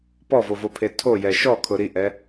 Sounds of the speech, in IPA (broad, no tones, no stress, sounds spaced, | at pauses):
p ɔ v o v o pʰ e tʰ o j ɛ ʃ ɔ kʰ ʊ ɾ i ʔ ɛ